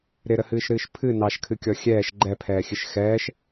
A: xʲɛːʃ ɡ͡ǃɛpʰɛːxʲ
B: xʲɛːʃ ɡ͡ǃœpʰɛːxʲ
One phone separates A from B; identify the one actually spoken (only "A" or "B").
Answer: A